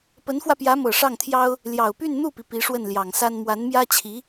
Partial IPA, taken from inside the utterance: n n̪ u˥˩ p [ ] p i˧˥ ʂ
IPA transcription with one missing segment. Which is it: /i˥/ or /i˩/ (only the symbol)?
i˩